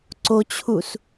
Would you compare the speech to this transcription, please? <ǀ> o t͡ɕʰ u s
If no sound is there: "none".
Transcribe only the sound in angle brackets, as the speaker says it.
ǀ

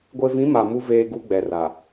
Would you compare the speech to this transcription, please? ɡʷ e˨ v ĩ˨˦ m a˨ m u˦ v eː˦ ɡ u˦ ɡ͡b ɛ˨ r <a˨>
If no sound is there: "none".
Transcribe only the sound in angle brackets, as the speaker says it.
a˨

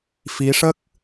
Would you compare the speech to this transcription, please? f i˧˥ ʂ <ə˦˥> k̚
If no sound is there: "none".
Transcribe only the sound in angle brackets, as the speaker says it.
ə˦˥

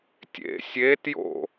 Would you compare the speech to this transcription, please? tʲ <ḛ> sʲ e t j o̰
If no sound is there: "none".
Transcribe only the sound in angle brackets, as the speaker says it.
ḛ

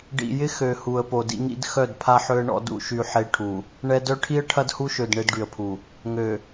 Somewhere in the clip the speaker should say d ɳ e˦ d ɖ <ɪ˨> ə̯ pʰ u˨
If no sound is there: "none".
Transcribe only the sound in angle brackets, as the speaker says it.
y˨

